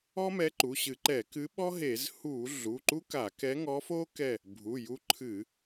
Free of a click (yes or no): no